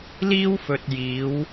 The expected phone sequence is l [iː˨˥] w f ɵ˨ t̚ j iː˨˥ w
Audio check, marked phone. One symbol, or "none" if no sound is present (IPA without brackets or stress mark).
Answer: iː˥